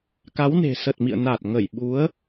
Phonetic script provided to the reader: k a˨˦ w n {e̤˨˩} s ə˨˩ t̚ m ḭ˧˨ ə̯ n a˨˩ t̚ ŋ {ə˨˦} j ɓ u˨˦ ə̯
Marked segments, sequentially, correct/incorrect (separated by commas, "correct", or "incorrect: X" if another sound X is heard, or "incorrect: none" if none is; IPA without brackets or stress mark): correct, incorrect: ə˧˩